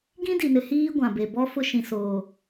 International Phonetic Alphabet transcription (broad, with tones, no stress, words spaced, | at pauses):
ɡĩ˦di˨nɪ˨hiː˦ ɡʷã˨be˨ bɔ˦fʊ˦ʃĩ˨ soː˨